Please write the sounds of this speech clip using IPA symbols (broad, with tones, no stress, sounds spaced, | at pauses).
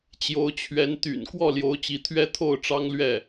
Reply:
t͡ɕ j o˧˥ ʊ̯ t͡ɕʰ ɥ ɛ˧˥ n t̪ y̰˨˩ n k w ɔ˥˩ l j o˧˥ ʊ̯ t͡ɕ i˧˥ t̪ʰ ɥ ɛ˥˧ t̪ʰ o˥˩ ʊ̯ ʈ͡ʂ ɑ˥ ŋ l ɥ ɛ˥˩